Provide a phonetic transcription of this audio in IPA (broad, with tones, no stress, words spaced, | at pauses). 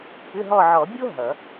pʏ˧˥˧ɦɔ˦˨ ʕɔ˨˩˦bʲo˥ ɦʌ˨˩˦